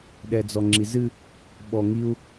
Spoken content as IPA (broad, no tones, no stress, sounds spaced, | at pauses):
ɗ ɛ d͡z ɔ ŋ͡ǁ i z ɨ | ɓ ɔ ŋ i u̯